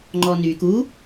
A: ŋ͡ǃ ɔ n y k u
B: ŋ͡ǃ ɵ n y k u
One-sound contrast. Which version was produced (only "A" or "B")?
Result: A